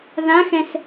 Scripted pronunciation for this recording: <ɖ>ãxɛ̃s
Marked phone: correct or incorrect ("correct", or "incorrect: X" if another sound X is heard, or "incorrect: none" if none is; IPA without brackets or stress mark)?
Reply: incorrect: ð